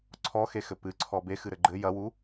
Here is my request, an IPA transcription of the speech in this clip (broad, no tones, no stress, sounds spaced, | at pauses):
ǀʰ ɔ x e x ɘ p ɨ ǀʰ ɔ b e x ɨ ɾ ɘ ɡ͡ǃ ɘ j ɐ w u